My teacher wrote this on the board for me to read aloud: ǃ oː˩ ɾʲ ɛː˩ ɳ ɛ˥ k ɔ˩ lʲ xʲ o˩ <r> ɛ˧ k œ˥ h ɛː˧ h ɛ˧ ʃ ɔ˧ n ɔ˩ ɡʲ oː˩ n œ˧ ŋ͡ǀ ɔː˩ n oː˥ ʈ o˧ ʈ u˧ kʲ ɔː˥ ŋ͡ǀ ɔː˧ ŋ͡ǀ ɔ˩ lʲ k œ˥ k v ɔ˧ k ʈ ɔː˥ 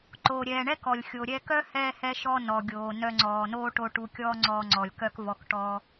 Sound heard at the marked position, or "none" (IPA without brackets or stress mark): ɾʲ